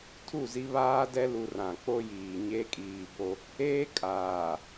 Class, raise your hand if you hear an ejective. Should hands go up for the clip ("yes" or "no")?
yes